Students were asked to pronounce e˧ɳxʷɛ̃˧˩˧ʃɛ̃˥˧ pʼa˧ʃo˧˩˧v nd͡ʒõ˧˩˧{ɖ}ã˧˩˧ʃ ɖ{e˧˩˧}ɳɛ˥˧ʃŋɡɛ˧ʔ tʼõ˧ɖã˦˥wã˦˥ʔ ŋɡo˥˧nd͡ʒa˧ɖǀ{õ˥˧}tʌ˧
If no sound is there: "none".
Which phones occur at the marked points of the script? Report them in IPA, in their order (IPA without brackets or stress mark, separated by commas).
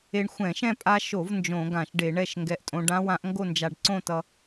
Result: ɡ, e˧˩˧, õ˥˧